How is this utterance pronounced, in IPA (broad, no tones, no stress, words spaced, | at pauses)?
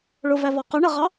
ɭʊvæ vɒqʊɳəʁɑ